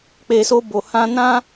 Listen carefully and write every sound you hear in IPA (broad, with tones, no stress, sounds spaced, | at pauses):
k͡p e˨ s o˧ b o˨ h ã˧ n ã˦